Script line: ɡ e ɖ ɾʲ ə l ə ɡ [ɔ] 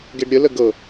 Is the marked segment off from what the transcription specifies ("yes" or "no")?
yes